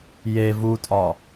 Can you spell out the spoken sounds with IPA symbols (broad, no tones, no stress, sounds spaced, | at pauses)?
j e v u tʼ ɒ